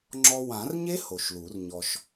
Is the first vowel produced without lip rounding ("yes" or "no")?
no